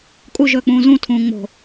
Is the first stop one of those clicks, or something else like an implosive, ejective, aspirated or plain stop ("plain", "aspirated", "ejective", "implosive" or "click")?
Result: ejective